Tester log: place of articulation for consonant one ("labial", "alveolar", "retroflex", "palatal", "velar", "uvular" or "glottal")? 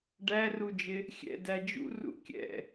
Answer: retroflex